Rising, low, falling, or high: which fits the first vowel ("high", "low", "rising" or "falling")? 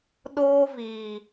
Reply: high